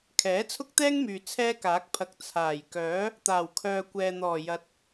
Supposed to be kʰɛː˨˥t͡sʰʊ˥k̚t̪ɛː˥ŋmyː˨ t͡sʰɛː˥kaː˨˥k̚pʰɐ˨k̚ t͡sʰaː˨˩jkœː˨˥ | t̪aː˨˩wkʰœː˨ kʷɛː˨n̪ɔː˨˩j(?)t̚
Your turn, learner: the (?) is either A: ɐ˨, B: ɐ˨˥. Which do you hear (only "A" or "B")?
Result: B